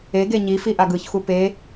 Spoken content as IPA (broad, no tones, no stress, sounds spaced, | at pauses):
e ɡ e ɲ i f i ʔ a ɡ ɯ ç x u p e